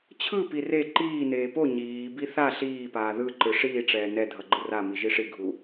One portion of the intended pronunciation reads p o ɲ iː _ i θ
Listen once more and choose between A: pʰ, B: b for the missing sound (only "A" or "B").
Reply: B